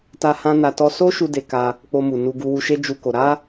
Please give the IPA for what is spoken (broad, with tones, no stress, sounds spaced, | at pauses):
t a˦ h ã˦ n a˧ t ɔ˧ s o˦ ʃ u˧ d e˧ k a˧ | k͡p o˧ m u˨ n u˧ ɡ u˧ w u˧ ʃ e˦ d͡ʒ u˦ k o˧ ɾ a˦